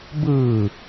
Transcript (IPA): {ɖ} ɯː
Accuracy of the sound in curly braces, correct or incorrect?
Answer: incorrect